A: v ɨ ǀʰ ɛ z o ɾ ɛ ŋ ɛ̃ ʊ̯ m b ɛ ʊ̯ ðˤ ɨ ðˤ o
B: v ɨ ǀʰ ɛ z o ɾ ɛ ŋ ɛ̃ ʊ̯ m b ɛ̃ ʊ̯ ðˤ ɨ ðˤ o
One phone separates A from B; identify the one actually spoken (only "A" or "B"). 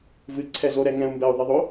A